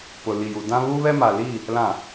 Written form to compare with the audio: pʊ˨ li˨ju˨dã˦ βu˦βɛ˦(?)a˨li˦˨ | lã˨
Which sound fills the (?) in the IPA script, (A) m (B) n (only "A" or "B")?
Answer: A